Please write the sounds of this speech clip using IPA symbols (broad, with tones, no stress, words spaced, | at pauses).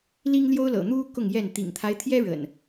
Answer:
li˦ŋljo˦ʊ̯ lɤ̰˨˩n̪u˦ kʊ˥˨ŋjɛ˥˨n t̪ḭ˨˩ŋt̪ʰa˦ɪ̯t̪ʰjɛ˦ ɻə̰˨˩n